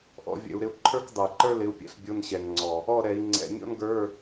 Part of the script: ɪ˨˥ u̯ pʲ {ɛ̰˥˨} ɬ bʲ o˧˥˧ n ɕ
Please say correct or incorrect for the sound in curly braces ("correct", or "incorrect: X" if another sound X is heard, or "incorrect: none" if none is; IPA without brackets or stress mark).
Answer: correct